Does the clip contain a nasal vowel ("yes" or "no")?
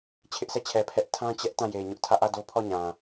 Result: yes